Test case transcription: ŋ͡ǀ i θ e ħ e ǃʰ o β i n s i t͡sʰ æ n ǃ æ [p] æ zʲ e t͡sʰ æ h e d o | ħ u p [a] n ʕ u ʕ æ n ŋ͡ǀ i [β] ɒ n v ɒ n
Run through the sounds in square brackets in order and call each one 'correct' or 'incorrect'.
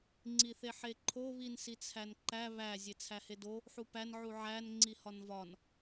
incorrect: β, incorrect: æ, incorrect: h

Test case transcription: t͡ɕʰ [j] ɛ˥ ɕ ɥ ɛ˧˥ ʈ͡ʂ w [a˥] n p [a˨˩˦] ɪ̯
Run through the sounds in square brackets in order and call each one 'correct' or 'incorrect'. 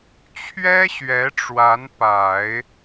incorrect: ɥ, incorrect: a˧˥, correct

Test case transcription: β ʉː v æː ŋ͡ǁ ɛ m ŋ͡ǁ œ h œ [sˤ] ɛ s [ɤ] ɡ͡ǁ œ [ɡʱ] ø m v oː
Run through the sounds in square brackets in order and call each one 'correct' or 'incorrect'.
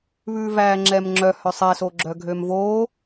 correct, incorrect: o, correct

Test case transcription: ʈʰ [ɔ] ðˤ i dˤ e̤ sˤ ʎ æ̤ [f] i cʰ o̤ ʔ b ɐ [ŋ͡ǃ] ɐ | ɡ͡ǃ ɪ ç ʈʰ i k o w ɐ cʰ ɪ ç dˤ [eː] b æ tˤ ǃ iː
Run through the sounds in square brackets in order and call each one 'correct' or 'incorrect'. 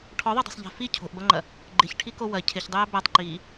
correct, correct, correct, incorrect: ɛː

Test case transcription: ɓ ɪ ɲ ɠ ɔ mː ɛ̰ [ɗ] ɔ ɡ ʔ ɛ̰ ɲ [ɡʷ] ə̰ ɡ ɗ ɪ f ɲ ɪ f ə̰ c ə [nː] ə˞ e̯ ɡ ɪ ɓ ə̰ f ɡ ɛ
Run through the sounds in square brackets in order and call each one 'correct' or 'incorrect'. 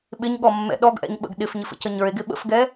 correct, incorrect: ɓ, incorrect: ɲ

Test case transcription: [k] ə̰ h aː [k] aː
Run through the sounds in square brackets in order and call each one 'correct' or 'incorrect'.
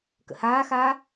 correct, incorrect: x

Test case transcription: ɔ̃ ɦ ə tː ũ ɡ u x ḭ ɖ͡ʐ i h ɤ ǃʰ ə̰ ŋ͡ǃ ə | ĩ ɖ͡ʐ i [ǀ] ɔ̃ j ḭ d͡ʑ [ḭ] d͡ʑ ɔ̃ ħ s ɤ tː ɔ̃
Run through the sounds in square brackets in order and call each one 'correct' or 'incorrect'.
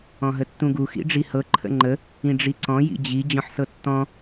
correct, incorrect: i

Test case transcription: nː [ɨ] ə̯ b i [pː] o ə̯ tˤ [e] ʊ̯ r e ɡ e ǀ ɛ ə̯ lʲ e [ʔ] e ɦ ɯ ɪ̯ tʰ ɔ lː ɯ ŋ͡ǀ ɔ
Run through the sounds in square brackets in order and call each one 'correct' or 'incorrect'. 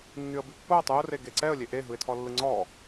incorrect: y, correct, incorrect: y, correct

